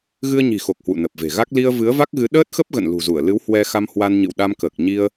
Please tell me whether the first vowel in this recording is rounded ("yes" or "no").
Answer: no